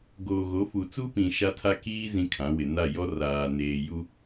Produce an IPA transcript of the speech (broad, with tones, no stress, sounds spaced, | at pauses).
ɡ oː˨ ɣ o˨˦ f u˨ t͡s u˦ p ĩ˨ ʃ a˦ tʰ a˦ k iː˦ z ĩ˦ kʰ ã˨˦ w ɪ˨ n a˦˨ j ɔ˦ r aː˨ n eː˨ j u˦